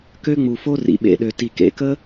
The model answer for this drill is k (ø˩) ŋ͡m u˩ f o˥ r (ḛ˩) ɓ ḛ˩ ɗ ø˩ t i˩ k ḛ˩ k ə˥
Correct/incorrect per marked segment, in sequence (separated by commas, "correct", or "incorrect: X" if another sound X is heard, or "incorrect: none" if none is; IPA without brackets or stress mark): incorrect: ø˥, incorrect: ḭ˩